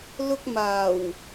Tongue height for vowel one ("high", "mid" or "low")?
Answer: high